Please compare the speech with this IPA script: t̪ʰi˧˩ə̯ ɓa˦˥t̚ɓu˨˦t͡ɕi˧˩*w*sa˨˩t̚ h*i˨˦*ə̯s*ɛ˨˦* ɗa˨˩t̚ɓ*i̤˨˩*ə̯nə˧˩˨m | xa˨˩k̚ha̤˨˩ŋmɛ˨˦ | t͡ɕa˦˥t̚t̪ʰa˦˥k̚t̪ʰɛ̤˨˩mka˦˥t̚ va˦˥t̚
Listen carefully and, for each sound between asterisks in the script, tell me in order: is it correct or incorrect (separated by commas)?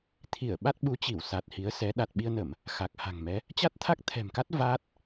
correct, correct, correct, incorrect